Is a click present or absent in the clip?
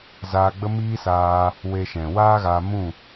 absent